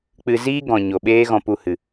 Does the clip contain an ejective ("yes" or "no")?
no